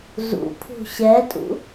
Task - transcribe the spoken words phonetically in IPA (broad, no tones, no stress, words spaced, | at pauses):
zṵpʰṳ ɕɛtʼṵ